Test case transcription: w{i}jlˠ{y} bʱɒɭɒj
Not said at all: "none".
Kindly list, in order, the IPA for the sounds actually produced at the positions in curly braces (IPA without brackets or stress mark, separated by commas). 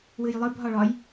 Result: ɨ, ɨ